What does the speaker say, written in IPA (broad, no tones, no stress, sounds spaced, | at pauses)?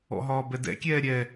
ɔ̰ ɦ ɒː b ɛ d ɛ̰ kʲ ɛː ɾʲ ɛ